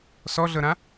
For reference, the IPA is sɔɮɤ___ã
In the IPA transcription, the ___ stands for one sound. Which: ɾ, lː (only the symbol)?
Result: ɾ